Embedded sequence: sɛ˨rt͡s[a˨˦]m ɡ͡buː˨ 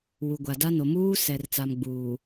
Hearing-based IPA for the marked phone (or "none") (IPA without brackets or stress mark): a˨